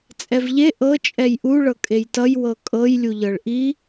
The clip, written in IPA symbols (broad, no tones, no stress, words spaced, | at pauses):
t͡sʼɛvʎe ʔɤ t͡ʃʼɛjʔu ɭɤkʼejtʌj wɤkʼɤj lʲuʎɤɭʔi